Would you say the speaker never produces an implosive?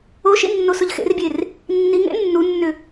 yes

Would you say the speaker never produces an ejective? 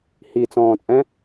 no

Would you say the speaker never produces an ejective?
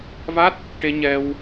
yes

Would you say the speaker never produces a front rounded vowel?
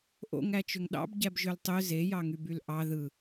no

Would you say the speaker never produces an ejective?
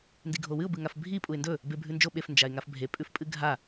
no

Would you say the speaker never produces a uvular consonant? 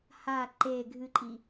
yes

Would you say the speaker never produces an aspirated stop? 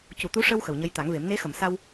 yes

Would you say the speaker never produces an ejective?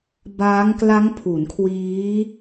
yes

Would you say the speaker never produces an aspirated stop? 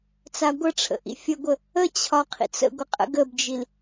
no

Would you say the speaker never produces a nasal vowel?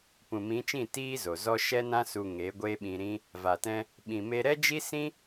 no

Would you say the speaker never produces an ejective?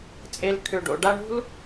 no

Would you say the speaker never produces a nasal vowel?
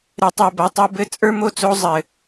yes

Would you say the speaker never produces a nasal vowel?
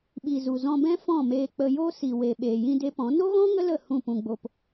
no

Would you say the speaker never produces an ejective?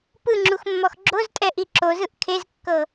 no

